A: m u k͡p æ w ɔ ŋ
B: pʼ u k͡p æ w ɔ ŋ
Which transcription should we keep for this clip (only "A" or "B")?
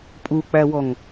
B